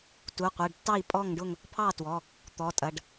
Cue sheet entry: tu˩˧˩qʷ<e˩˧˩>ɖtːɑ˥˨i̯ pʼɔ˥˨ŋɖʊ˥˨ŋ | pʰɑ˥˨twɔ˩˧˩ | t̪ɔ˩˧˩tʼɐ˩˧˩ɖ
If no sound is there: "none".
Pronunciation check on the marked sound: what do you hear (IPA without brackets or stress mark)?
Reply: e˩˧˩